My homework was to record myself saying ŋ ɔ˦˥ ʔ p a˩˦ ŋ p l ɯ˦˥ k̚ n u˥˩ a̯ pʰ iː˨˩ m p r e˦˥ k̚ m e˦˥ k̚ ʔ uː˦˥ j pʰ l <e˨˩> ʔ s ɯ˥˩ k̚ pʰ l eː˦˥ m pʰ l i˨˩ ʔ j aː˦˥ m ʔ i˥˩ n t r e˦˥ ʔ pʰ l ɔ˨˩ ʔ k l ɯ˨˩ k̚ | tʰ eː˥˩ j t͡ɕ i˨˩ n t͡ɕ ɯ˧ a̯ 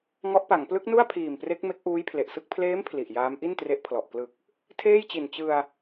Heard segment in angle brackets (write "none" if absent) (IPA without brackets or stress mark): e˨˩